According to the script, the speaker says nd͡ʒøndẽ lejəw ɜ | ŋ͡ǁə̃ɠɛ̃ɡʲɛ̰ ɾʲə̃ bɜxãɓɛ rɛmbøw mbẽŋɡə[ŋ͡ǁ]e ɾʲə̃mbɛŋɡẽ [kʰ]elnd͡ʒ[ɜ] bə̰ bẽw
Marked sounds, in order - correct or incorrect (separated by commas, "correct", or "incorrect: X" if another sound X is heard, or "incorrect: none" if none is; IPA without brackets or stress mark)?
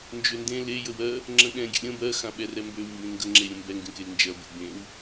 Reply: correct, incorrect: k, correct